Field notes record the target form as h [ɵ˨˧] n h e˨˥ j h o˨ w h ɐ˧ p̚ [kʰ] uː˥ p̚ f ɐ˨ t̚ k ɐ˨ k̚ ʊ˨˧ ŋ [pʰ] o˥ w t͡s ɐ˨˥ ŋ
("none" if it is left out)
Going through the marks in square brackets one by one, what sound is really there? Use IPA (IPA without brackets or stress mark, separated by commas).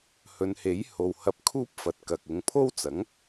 ɵ˨˧, kʰ, pʰ